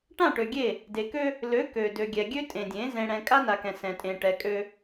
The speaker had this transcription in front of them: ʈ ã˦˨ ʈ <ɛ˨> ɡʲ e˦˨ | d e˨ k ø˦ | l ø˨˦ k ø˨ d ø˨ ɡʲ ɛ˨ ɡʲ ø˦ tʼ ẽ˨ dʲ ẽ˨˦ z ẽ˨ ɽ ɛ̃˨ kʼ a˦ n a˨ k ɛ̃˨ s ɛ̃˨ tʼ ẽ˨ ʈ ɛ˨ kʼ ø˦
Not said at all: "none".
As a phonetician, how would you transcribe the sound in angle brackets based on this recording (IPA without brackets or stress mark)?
ø˨